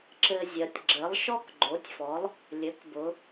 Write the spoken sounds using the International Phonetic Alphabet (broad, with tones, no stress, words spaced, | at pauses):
ǁɘ˧zʲɜ˩˧tʲ ɡ͡ǁɘ˩˥lˠʃɔ˥k ɡ͡ǃo˩˥tʲfɔ˩˥lˠ | lʲɘ˩˥kbʊ˩˧